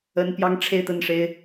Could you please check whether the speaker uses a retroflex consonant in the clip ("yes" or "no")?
yes